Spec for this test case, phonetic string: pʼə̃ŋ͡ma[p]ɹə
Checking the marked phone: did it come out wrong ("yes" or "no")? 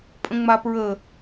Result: no